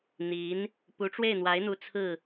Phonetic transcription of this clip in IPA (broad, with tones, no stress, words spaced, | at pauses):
n̪i˧˥n | pu˧˥ʈ͡ʂwe˥˩ɪ̯n̪wa˧˥ɪ̯n̪u˧˥ t͡sʰɹ̩˥˩